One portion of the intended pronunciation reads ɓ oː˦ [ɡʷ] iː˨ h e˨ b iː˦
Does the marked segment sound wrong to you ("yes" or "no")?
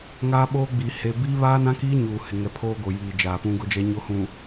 yes